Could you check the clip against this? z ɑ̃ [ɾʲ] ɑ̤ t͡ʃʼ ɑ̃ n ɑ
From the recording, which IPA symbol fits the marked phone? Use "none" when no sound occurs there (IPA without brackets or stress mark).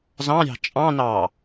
ɾʲ